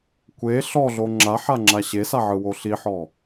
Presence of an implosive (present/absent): absent